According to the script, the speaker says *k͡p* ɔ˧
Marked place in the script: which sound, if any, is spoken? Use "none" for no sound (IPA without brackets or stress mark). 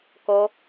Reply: k